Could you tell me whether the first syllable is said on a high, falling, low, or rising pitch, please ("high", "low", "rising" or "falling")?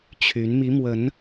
rising